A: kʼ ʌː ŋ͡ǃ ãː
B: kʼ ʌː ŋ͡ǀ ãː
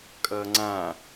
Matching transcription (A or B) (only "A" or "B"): B